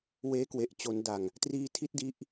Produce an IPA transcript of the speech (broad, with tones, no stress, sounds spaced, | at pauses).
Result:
w eː˦˥ k w e˨˩ ʔ t͡ɕ o˩˦ n d a˨˩ ŋ | t r iː˧ tʰ i˦˥ t̚ d i˦˥ ʔ